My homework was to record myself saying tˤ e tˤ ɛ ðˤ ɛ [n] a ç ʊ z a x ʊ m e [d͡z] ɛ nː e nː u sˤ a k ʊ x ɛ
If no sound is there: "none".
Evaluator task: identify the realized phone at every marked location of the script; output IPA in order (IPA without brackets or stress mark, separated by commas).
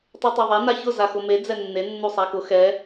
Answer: n, d͡z